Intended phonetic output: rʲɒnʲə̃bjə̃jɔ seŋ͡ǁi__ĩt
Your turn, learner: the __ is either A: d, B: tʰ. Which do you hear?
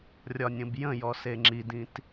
A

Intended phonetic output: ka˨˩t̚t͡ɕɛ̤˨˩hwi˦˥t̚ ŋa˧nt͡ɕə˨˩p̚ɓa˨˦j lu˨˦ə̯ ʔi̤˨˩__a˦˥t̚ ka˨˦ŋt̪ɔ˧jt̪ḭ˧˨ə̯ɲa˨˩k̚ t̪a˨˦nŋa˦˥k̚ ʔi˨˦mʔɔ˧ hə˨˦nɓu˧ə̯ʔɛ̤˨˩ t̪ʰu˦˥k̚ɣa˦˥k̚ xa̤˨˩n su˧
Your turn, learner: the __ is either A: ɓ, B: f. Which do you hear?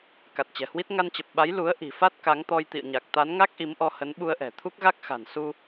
B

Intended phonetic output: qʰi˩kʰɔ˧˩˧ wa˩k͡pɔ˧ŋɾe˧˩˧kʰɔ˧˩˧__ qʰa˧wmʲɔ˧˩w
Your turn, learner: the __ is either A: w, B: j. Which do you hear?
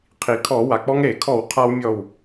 A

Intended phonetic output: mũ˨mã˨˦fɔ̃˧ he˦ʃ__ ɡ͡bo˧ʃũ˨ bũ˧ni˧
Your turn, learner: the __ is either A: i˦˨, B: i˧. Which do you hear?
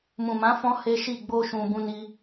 A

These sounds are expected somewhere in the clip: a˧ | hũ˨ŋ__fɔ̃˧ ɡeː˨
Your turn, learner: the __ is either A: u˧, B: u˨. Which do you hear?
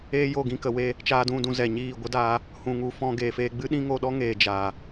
B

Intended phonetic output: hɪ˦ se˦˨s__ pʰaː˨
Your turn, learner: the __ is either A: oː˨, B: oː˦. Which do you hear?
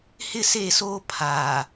B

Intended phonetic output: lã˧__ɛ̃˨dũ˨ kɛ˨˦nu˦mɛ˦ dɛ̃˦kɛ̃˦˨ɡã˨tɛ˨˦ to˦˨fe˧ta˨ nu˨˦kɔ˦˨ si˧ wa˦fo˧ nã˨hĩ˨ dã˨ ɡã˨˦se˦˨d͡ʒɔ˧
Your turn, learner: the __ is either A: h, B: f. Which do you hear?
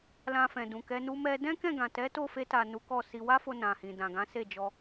B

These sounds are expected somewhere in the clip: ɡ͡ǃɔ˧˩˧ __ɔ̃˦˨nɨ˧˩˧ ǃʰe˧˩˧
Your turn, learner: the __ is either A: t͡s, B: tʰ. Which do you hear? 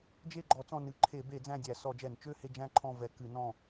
A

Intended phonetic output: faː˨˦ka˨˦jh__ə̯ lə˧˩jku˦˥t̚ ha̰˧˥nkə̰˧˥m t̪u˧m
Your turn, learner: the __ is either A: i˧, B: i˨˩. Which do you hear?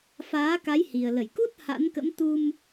B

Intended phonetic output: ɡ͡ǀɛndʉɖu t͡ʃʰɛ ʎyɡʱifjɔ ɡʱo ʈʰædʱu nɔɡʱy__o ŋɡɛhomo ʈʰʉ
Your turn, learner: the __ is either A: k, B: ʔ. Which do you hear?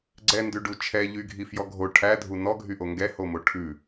B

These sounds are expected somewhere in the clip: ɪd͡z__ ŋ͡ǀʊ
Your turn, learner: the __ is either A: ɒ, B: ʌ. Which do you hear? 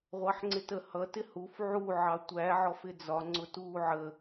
A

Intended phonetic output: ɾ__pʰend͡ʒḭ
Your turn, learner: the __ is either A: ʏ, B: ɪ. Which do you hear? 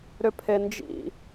A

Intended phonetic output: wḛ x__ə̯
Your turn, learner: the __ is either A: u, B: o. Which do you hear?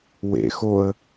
B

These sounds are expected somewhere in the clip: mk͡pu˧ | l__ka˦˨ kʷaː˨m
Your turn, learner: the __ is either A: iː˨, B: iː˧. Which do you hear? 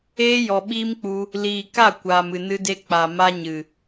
A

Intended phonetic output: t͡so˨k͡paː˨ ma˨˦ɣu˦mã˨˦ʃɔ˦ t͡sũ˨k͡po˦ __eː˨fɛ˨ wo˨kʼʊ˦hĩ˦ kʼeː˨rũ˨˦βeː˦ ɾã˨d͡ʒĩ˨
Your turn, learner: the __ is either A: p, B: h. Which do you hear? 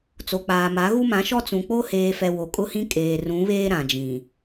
B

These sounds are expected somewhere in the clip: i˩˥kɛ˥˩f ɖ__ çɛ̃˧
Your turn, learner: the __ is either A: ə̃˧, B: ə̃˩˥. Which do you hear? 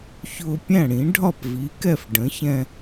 B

